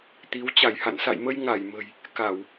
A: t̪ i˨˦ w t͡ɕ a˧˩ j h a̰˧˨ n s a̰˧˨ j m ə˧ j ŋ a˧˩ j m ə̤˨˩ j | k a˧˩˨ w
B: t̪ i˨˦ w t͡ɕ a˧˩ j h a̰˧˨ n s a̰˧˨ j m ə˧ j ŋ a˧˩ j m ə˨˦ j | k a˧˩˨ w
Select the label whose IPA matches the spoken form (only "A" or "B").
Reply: A